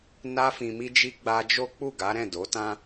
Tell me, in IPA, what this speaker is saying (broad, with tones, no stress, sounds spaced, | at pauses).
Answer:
n a˧ f ĩ˨ m i˧ d͡ʒ i˧ ɡ͡b a˧ d͡ʒ o˦ k͡p u˦˨ ɡ a˨˦ ɾ ɛ̃˦˨ d o˨˦ t ã˦